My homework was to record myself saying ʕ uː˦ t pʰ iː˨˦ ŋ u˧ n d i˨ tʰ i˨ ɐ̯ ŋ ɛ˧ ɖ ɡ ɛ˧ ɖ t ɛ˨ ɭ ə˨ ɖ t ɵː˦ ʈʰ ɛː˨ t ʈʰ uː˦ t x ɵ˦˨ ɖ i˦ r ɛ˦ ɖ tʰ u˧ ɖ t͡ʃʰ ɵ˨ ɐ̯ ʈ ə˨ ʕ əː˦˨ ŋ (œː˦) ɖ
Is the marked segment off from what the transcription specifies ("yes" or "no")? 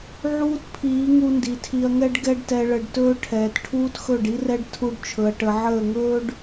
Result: yes